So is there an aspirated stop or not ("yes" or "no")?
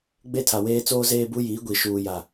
yes